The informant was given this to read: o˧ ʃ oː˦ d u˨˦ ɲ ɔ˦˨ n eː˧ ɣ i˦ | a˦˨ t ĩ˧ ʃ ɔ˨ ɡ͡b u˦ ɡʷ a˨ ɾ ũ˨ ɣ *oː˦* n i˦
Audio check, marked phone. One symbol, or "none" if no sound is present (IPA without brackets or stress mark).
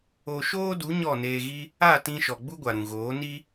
oː˨˦